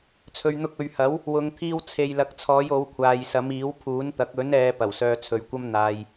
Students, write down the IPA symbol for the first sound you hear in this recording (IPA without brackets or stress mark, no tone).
t͡sʰ